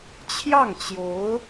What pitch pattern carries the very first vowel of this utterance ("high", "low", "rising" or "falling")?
falling